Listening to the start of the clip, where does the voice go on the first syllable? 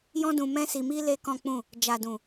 high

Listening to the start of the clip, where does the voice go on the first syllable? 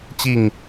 falling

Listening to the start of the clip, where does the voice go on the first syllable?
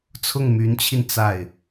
falling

